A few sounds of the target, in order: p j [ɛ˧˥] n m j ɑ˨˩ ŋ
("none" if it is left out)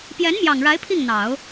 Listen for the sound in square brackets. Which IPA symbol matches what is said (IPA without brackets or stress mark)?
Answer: ɛ˧˥